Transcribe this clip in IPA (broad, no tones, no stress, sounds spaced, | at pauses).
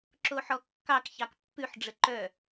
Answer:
ǁ o ħ ɔ kː ɑ k ç ɑ k pː ʉ ħ ɖ͡ʐ ə ǃ œ